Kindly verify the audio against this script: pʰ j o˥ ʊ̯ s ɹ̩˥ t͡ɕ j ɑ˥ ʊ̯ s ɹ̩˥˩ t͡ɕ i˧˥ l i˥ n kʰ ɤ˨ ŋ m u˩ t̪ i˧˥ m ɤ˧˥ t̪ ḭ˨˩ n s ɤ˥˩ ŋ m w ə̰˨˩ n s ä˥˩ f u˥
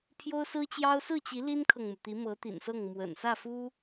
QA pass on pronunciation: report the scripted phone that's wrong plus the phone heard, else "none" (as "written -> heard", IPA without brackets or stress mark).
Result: none